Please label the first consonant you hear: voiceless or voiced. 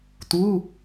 voiceless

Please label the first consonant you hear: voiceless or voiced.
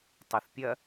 voiceless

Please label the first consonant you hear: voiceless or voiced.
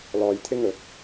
voiced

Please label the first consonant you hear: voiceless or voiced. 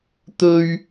voiceless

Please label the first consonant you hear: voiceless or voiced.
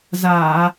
voiced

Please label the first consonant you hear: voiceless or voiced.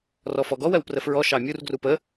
voiced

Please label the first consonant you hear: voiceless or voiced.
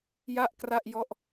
voiced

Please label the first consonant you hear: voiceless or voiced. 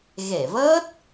voiced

